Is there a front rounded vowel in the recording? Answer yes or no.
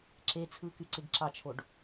yes